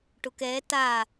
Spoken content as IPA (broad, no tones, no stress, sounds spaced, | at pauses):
ʈ ʊ k ɛ t a